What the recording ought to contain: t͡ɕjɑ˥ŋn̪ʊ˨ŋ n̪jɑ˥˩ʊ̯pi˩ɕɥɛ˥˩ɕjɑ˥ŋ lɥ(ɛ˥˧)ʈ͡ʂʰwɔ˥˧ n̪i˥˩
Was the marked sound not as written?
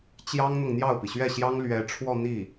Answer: yes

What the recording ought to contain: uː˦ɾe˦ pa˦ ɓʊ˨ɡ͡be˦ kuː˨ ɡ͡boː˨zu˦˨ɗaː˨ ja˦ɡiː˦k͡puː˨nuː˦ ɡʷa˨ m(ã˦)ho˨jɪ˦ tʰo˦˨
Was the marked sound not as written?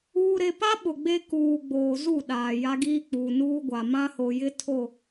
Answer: no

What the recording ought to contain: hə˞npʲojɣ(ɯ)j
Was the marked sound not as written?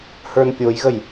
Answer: yes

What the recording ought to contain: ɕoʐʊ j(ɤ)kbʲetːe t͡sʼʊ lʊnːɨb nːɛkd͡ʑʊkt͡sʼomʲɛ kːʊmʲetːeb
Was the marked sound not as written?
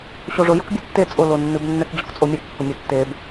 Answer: no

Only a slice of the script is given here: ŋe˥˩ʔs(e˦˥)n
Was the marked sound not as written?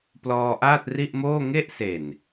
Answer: yes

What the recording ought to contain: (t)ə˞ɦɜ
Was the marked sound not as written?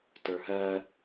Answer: no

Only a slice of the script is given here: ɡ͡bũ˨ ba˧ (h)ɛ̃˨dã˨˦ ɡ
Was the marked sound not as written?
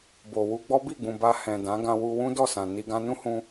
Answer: no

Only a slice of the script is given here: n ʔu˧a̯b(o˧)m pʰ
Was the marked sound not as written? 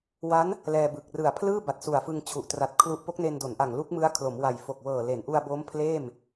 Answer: yes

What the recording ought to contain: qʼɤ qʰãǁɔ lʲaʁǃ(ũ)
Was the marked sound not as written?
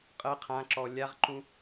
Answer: no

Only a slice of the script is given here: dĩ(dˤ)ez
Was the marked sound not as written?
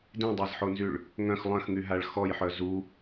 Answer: no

